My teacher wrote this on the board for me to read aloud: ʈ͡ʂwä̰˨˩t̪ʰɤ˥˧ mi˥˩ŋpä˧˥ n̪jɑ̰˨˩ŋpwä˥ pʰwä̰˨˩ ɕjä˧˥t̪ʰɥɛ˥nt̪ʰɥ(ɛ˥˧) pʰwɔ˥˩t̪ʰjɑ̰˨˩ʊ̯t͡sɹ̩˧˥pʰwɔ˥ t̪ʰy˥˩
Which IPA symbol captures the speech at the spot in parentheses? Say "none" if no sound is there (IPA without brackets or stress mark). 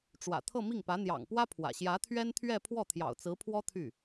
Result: ɛ˥˧